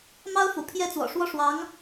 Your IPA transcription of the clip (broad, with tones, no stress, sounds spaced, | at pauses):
m ɑ˥ ʊ̯ f ṵ˨˩ pʰ j ɛ˥˩ t͡s w ɔ̰˨˩ ʂ w ɔ˥˩ ʂ w ɑ˧˥ ŋ